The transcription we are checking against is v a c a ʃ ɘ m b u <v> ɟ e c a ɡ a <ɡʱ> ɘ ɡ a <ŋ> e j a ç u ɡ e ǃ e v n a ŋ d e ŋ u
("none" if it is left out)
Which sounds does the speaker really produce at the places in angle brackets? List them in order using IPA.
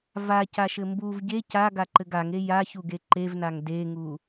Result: v, ǃ, ŋ

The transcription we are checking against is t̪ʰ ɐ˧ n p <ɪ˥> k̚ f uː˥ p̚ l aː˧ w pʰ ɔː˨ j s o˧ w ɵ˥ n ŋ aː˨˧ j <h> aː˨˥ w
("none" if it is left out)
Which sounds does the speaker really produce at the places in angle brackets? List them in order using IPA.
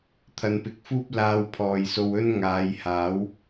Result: ɪ˧, h

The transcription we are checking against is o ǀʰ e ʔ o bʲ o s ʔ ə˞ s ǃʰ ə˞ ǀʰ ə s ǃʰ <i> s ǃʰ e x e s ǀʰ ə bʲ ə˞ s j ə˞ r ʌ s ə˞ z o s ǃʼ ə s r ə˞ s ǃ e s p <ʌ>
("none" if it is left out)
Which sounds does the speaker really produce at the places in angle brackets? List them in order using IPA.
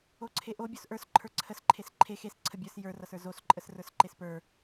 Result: e, ə˞

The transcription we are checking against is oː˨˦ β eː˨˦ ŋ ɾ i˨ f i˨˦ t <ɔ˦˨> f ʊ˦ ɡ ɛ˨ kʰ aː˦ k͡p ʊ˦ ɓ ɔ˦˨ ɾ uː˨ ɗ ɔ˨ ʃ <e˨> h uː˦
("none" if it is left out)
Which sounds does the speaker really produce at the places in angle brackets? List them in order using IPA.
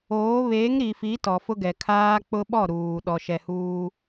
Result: ɔ˨, ɛ˨

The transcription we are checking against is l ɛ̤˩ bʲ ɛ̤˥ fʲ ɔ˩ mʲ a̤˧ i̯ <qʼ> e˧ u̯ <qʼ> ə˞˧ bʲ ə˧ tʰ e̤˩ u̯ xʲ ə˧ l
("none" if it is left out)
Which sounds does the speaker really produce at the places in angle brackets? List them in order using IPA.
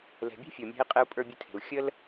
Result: qʼ, pʼ

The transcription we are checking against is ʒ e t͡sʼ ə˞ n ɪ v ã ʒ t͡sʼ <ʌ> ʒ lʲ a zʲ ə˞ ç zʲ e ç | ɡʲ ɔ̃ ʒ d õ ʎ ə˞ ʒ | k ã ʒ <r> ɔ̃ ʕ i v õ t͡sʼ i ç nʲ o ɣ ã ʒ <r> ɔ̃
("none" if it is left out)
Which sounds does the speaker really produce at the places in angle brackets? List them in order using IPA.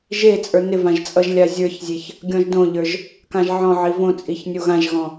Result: ʌ, ʕ, ɣ

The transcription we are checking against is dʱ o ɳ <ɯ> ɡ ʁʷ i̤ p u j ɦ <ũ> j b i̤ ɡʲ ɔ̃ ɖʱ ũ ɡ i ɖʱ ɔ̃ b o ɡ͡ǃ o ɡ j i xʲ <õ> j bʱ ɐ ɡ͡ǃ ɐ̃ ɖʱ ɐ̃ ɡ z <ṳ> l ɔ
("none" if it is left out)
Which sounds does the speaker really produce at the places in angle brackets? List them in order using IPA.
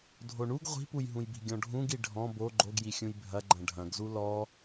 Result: u, ũ, ũ, u

